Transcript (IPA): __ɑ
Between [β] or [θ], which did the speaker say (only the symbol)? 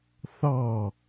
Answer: θ